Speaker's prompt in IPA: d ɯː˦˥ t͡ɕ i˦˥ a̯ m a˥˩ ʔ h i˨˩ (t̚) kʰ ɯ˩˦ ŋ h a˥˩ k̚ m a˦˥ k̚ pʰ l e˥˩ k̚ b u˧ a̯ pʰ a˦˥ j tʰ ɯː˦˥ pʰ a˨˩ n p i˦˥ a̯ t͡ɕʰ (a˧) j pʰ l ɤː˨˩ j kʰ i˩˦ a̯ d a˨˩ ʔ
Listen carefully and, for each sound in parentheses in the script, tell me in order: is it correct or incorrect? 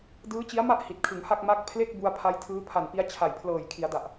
correct, incorrect

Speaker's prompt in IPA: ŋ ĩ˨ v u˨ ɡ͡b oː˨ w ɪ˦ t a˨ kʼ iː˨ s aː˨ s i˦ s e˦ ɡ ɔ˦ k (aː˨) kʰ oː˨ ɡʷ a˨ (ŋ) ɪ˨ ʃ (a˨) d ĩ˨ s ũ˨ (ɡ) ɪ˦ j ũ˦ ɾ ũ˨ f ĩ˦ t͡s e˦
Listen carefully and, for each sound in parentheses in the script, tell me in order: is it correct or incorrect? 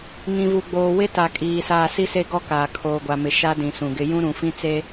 correct, incorrect, incorrect, correct

